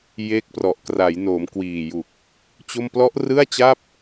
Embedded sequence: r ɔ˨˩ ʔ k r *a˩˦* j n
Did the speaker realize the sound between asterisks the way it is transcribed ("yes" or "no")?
yes